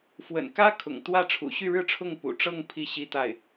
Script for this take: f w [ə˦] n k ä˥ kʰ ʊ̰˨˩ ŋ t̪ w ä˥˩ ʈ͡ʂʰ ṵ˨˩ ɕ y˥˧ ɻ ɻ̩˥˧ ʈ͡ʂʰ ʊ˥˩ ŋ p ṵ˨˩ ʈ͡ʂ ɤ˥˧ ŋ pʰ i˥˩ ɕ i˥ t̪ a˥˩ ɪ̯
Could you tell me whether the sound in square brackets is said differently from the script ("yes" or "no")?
yes